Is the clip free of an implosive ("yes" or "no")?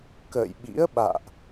no